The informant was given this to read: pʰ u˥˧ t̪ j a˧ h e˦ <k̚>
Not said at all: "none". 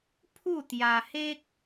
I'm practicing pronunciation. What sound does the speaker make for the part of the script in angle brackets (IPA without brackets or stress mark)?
k̚